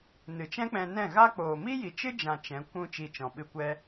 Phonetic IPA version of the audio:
n ɨ˨ t͡ʃ ɛ̃˦ k͡p ɛ̃˧ n ɛ̃˦˨ ɣ a˦ k͡p oː˨ m i˦ j i˨ t͡ʃ ɨ˦ d͡ʒ ã˨ t͡ʃ ɛ̃˨˦ kʷ ũ˦ t͡ʃ i˧ t͡ʃ ɔ̃˨ ɓ ɨ˧ kʷ ɛ˦

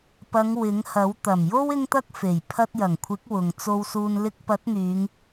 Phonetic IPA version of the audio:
p ɐ˨˧ ŋ w ɪ˨˥ ŋ h ɐ˨˥ w t̪ ɐ˨˩ m j o˥ w ɪ˥ ŋ t̪ ɐ˥ k̚ f e˨˩ j pʰ ɐ˧ t̚ j ɐ˨˩ ŋ kʷʰ ɪ˨˥ k̚ w ʊ˨ ŋ t͡s o˧ w s uː˧ n l ɪ˥ k̚ p ɐ˨˥ t̚ n̪ yː˨˧ ŋ

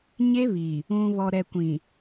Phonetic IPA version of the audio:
ɲ e˦ β i˨ | ũ˨ β ɔ˨ ɾ ɛ˨ kʷ ĩ˨

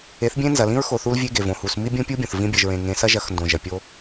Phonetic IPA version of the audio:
e˨˦ θ bʲ ẽ˦ n z ɐ˨ l ĩ˦ ɹ x o˨ θ u˦ l vʲ e˦ ɡ e˨ v õ˨ h u˨ s m i˦ bʲ ũ˦ pʲ u˦ bʲ õ˨ θ v ĩ˦ bʲ ɐ˨ ʒ ɹ ẽ˨ ŋ ẽ˨˦ s ɐ˦ ʒ ɐ˨˦ x n d õ˨ ʒ ɐ˨ pʲ o˦

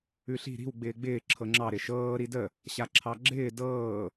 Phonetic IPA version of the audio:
ʉ ɬ i̤ ɾ i̤ w ɡ͡b ɪː ɡ͡b ɪː ǁʰ ɤ ŋ͡ǁ ɑ ɾ ɪ ʃ ɤː ɾ i d ə | ɕ a ǁʰ ɑ ɡ͡ǁ ɪː d ɤː

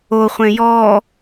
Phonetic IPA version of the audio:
o χʷ ẽ j ɔ

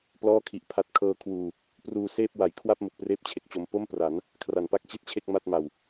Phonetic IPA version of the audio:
p l ɔː˥˩ kʰ i˨˩ ʔ pʰ a˦˥ t̚ kʰ ɤː˧ kʰ w uː˨˩ | p r uː˧ s eː˥˩ p̚ w a˩˦ j kʰ w a˥˩ p̚ m u˨˩ k̚ p r eː˥˩ p̚ t͡ɕʰ e˨˩ k̚ t͡ɕ o˧ m p o˥˩ m p r a˩˦ n | kʰ r a˩˦ n p a˦˥ k̚ t͡ɕ i˥˩ t̚ t͡ɕʰ e˥˩ k̚ m a˥˩ t̚ m a˨˩ w

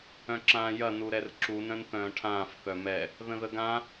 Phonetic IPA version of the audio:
œ̃ ǁ ãː j ɐ n u ɾ ɛ r ǁ u n œ̃ n θ œ̃ː ʈʰ ãː f θ œ m ɛ | ð ə̃ ð ə ɡ ã

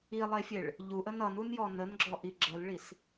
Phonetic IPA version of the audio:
i lˠ e fʲ e ɭ | ʎ u ʔ ə n ʌ n u n j ɔ n ə n ɡ͡ǁ ɔ ʔ i ɡ͡ǁ ə l ɭ i s

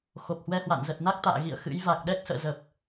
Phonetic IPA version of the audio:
x o˨˩ p̚ h w ɛ˧ h w a̰˧˨ n z ə˨˩ t̚ n a˦˥ k̚ t̪ a̰ː˧˨ ɣ ḭ˧˨ ə̯ x ɨ̰˧˥ j v a˨˩ k̚ ɗ ɛ˦˥ k̚ s ə̰ː˧˨ z ə˨˩ p̚

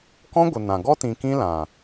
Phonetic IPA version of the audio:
k ɔ̃˦ ɡʷ ə˨ n ã˨ ɡ ɔ˦ t ĩ˨ k ĩ˦ l ã˨

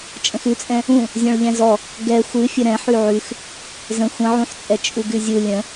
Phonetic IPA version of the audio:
t͡ʃʼ ə̃ x ʉ t͡sʼ ɛ̃ | ũ | zʲ ɔ̃ ɭ ʎ ɛ̃ z ɔ | ɡ ɛ xʷ ɨ fʲ ə ɾ ɛ̃ ħ ʉ ʕ ʉ x | z ə̃ xʷ ə̃ ʕ ũ ħ t͡sʼ ɛ t͡ʃʼ u ɡ ʉ zʲ u lʲ ə̃

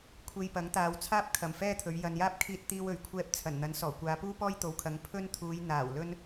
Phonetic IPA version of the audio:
kʷʰ e˧ j p ɐ˨˥ ŋ t̪ aː˨ w t͡sʰ aː˥ p̚ kʰ ɐ˨˩ m f ɛː˥ t̪ʰ ɵ˨˧ ɥ j ɐ˨ n j aː˥ p̚ kʰ iː˧ t̚ t̪ iː˧ w ɵ˨˩ ɥ kʷʰ ɛː˧ p̚ t͡sʰ ɐ˨˩ n n̪ ɐ˨˥ n s ɔː˨˩ kʷ aː˨˧ p uː˥ p ɔː˥ j t̪ o˨ w kʰ ɐ˨˧ ŋ pʰ ɵ˥ n t̪ʰ uː˨˧ j n̪ aː˨˩ w l ɵ˥ n

